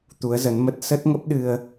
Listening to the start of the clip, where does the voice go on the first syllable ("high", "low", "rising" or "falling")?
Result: rising